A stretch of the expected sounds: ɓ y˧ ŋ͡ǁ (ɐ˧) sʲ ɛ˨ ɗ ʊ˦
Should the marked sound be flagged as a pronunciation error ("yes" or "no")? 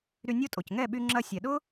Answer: no